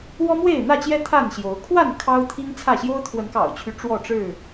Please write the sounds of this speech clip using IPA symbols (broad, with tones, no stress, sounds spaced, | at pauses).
w ɔ˦ m w e˥˨ ɪ̯ n̪ ä˥˨ t͡ɕ j ɛ˦ t̪ʰ a˥˨ n ɕ j o˨˦ ʊ̯ kʰ w a˥˨ n kʰ ɑ˦ ʊ̯ t̪ʰ i˦ ŋ t͡sʰ ä˥˨ ɕ j o˦ ʊ̯ t̪ʰ w ə˨˦ n k ɑ̰˨˩ ʊ̯ t͡ɕʰ y˦ ʈ͡ʂ w ɔ˥˨ ʈ͡ʂ ɻ̩˥˨